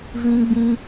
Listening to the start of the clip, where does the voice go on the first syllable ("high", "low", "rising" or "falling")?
high